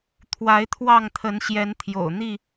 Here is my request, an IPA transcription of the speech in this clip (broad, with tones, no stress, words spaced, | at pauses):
t̪ʰwa˨˦ɪ̯t̪ʰwɑ˥˨ŋt̪ʰə˨˦nɕjɛ˨˦n t̪ʰjo̰˨˩ʊ̯n̪i˥˨